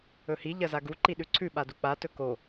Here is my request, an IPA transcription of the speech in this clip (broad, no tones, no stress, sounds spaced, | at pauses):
ɵ h i ʎ ɐ z a ɡ u ǃ i ɗ ʉ ǀʰ ʉ ɓ a d u k͡p a t ɵ k o